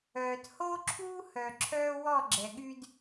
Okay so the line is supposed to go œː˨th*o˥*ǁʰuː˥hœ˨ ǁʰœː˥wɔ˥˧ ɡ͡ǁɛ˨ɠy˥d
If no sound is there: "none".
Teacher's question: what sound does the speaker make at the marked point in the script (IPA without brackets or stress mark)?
o˥